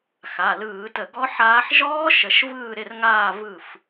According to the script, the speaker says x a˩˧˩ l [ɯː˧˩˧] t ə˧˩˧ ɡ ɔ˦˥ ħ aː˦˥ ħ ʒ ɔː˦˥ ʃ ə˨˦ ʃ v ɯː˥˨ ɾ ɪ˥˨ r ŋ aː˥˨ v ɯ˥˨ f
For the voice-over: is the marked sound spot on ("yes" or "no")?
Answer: yes